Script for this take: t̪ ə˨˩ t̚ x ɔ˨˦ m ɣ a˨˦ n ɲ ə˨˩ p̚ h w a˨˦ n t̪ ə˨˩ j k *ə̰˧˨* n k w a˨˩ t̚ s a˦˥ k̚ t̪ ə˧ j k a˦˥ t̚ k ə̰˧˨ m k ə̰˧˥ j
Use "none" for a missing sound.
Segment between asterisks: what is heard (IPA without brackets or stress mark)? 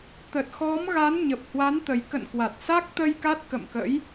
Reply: ə̰˧˨